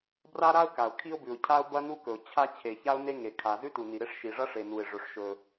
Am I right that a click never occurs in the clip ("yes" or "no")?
yes